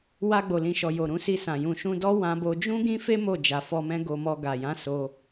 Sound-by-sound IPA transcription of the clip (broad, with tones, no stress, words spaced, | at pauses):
wa˧ɡ͡bo˨lĩ˨ʃɔ˨ jo˨ɾũ˧si˧sã˨ jũ˨ʃũ˧dɔ˦ wã˧bo˧ d͡ʒũ˦ɡĩ˦fe˦ mo˦˨ d͡ʒa˨fɔ˧mɛ̃˦ ɡo˧mɔ˧ ɡa˨jã˨˦ so˧